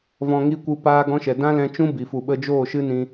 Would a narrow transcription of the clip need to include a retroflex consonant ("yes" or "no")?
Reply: no